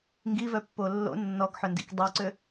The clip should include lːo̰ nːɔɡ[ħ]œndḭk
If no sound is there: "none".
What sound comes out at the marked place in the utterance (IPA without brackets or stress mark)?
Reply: ħ